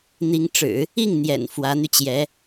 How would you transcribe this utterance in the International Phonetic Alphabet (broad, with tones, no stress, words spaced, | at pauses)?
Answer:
n̪i˧˥ŋ ʈ͡ʂɻ̩˨˩˦ | i˥˩ŋn̪jɛ̰˨˩n fwä˧˥n̪y˧t͡ɕjɛ˧˥